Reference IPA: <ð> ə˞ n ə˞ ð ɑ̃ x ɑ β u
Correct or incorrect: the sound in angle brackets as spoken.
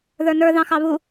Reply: correct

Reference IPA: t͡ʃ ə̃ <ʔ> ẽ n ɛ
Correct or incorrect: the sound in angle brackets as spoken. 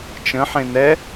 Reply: incorrect: ħ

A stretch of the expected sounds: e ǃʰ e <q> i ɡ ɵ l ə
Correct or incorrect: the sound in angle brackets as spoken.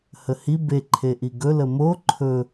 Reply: incorrect: ʔ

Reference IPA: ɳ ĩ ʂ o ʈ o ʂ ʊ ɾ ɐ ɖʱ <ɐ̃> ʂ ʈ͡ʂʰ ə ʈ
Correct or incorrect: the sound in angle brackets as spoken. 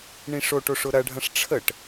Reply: correct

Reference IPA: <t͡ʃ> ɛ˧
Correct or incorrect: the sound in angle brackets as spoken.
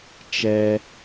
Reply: correct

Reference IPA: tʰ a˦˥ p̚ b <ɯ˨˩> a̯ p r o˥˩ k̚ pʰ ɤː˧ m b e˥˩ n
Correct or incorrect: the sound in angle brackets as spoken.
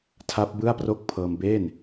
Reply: incorrect: ɯ˥˩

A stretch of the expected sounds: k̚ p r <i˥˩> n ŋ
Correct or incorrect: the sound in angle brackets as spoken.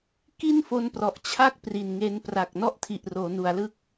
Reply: incorrect: i˨˩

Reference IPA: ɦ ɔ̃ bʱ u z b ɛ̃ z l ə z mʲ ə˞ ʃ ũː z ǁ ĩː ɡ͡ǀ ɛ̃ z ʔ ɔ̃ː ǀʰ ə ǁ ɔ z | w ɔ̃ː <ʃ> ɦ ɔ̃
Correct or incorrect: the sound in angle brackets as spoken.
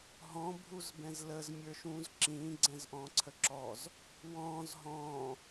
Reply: incorrect: z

